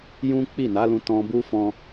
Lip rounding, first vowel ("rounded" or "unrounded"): rounded